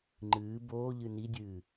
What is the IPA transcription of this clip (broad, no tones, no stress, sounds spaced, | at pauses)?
ŋ͡ǃ ɨː b oː ʎ ɨ n i dʲ ɨː